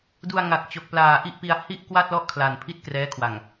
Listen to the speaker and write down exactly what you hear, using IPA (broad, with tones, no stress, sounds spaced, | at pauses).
d u˧ a̯ ŋ a˨˩ k̚ t͡ɕ o˨˩ k̚ p l aː˨˩ ʔ i˥˩ ʔ p i˧ a̯ h i˥˩ ʔ k w a˥˩ t̚ l ɔ˥˩ ʔ kʰ l a˨˩ n pʰ i˥˩ t̚ k r ɛː˦˥ kʰ w a˨˩ ŋ